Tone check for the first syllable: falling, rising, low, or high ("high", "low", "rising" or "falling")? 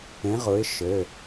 rising